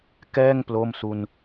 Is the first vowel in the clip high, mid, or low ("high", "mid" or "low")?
mid